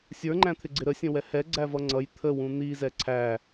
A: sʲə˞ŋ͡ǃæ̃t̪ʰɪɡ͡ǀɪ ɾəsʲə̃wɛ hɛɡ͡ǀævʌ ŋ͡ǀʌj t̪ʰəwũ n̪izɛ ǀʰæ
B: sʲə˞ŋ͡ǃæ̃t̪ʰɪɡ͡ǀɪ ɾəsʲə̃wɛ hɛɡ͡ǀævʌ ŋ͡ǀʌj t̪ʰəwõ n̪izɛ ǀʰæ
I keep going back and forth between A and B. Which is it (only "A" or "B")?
A